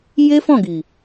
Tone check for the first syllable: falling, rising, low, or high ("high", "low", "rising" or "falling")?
high